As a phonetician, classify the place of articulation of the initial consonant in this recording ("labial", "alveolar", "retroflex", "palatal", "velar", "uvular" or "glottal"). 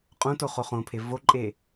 uvular